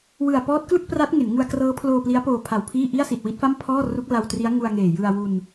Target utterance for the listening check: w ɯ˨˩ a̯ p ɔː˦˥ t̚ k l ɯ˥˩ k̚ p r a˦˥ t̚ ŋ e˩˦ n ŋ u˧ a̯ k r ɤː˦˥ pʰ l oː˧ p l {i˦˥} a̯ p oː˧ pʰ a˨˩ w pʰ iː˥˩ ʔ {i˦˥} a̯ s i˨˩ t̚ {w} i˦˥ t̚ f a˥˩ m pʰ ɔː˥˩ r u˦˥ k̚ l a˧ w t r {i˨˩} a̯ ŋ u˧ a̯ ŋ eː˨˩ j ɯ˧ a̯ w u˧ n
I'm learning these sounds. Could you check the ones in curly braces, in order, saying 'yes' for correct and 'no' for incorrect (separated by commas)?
yes, no, yes, no